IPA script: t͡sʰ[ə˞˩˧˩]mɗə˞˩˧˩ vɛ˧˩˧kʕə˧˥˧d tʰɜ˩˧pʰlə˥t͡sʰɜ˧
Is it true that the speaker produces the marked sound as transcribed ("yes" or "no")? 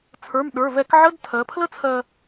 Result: yes